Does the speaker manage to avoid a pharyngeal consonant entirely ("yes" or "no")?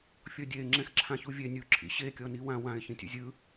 yes